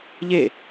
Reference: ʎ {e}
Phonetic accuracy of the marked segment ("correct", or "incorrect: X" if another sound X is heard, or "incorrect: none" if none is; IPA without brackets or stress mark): correct